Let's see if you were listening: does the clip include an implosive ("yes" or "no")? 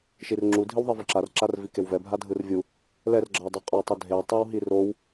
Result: no